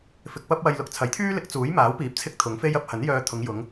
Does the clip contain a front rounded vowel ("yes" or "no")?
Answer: yes